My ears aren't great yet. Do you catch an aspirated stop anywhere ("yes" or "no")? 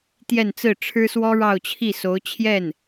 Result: yes